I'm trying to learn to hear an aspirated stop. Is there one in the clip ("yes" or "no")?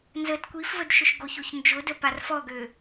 no